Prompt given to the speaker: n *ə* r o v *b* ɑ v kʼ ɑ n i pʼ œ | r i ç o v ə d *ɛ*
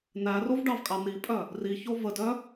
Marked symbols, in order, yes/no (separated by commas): no, no, no